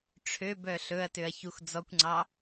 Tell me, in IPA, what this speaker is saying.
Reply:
ʈ͡ʂʰ ø b œ ɬ ɵ ɐ̯ t ø ɐ̯ ç u x d͡z ɔ kʷ ŋ͡ǀ ɑ

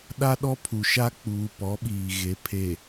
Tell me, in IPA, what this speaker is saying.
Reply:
ɗ a˦ ɗ ɔ˦ pʰ u˨ ʃ a˦ k͡p uː˨ p ɔ˨˦ ɓ iː˨ ɣ e˨˦ pʰ e˨

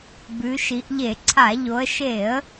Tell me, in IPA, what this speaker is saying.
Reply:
b ʉ˩˧ ʃ i˩˧ ʔ ʎ e˧˩˧ ǀʰ a˧˩˧ ʎ o˩˧ ə̯ ʃ e˧˩˧ ə̯

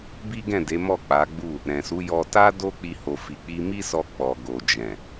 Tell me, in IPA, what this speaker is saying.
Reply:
b i˦ ɡ ɛ̃˦˨ d e˨˦ m ɔ˦˨ k͡p a˨˦ ɡ͡b u˦˨ | ɾ ɛ̃˨ s u˨˦ j ɔ˧ t a˦ d o˦ k͡p i˧ h o˨ f i˨ k͡p i˧ m i˦ s ɔ˧ k͡p ɔ˨ ɡ o˨ d͡ʒ ɛ̃˨

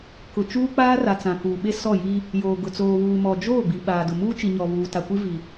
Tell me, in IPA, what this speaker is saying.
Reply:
k ʊ˨ t͡ʃ uː˦ k͡p aː˦ r a˨ t͡s ã˨ k uː˨ ɓ e˦ s ɔ˦˨ j i˦ | j oː˨ ɡ ʊ˨ t͡s oː˨ β uː˨ m ɔ˨ d͡ʒ oː˦˨ ɡ͡b i˨ ɓ aː˨ d ʊ˨ m uː˦ t͡ʃ i˨ ɲ ɔ˨ β uː˨ t a˨ kʷ i˦ v i˨

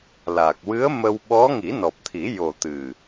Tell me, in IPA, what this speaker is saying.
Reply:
l a˨˩ k̚ w ɨ˧˥ ə̯ m ə˧ w ɓ ɔ˧˥ ŋ i˨˩˦ n ɔ˨˩ p̚ t̪ʰ i˨˩˦ j o˨˩ t̪ ɨ˨˩

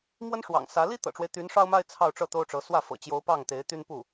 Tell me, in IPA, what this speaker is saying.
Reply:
m w ə˥ n ʂ w ɑ̰˨˩ ŋ s ä˧˥ l i˥ t̪ ɤ̰˨˩ ʈ͡ʂ w e˦ ɪ̯ t̪ y˧˥ n ʂ ɑ˥ ʊ̯ m a˥ ɪ̯ t͡sʰ ɑ˥˧ ʊ̯ ʈ͡ʂ ɤ˥˩ t̪ o˥ ʊ̯ ʈ͡ʂ ɤ˧˥ s w ä˥˩ f ɤ̰˨˩ t͡ɕ j o˧˥ ʊ̯ p ɑ˥˩ ŋ t̪ e˧˥ ɪ̯ t̪ y˥ n p u˥˩

